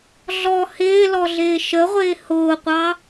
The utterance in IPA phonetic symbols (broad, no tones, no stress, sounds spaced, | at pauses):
ɮ ɔ h ɪː l ɔ ɮ ɪː ʃ ə ʁʷ ɪː h ʊː qʷ ɑ